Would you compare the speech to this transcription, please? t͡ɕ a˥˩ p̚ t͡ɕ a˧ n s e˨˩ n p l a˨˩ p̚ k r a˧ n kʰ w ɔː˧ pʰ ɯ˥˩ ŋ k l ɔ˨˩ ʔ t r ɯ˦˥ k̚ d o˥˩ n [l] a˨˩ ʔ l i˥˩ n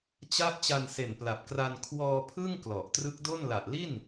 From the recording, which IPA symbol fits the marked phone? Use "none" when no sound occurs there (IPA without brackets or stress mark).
l